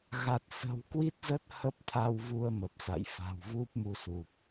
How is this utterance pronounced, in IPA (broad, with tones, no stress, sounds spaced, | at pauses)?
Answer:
ɣ a˨˩ t̚ s ə̤˨˩ w k w i˦˥ t̚ z ə˦˥ t̚ h ə˦˥ p̚ t̪ʰ a˧ w v u˧ ə̯ m ə˨˩ p̚ s a̰˧˨ j f a̤˨˩ w v u˦˥ p̚ m u˨˦ s u˨˩ p̚